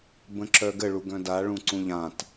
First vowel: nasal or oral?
nasal